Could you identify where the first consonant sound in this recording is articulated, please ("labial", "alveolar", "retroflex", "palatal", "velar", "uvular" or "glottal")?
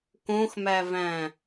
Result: velar